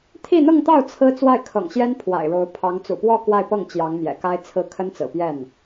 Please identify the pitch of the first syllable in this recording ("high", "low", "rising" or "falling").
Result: falling